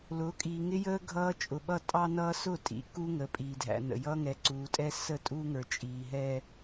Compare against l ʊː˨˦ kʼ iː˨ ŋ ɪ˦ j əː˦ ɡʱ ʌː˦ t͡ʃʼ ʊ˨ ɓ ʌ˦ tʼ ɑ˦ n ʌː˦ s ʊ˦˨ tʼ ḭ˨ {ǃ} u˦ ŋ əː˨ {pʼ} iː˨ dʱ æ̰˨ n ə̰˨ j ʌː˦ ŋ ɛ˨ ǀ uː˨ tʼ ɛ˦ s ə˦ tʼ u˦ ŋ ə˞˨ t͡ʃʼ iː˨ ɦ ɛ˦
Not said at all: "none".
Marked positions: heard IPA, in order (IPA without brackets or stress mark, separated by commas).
k, pʼ